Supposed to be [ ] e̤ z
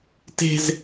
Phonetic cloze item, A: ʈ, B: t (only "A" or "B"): B